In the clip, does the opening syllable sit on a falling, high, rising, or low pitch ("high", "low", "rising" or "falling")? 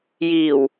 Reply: low